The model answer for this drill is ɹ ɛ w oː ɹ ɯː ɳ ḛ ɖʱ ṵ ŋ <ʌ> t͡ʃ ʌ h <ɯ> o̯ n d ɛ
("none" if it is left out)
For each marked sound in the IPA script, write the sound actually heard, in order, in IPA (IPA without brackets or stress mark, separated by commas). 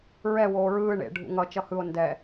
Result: ʌ, ɯ